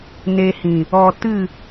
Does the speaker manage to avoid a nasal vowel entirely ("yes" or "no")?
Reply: no